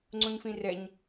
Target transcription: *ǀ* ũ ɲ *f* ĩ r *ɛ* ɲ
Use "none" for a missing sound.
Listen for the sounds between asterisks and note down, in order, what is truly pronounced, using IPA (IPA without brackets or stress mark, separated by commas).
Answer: ŋ͡ǀ, f, ɛ